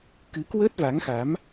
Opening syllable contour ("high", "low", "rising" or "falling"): rising